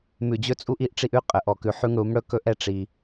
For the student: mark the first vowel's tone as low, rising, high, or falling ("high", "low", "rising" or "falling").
low